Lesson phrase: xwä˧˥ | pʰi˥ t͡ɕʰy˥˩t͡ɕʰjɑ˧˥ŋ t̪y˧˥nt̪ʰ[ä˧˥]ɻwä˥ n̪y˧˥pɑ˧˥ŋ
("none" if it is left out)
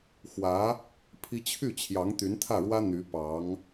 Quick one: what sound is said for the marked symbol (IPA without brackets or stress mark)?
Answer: ä˥˩